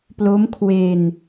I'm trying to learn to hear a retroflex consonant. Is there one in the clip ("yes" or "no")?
no